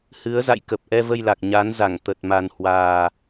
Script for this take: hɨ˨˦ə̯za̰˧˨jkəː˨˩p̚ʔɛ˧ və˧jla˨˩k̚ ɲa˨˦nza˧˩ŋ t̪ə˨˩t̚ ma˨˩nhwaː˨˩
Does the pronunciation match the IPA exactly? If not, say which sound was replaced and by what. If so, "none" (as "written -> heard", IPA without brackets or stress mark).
əː˨˩ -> ə˨˩